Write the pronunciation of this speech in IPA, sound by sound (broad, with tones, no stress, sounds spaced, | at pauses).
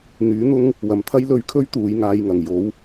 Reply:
n̪ yː˨˥ n̪ ʊ˥ ŋ | w ɐ˨˩ m t̪ʰ ɐ˥ j l ɵ˧ ɥ kʰ ɵ˥ ɥ t̪ uː˨˧ j ŋ aː˧ j ŋ ɐ˨˩ ŋ j o˨˥ w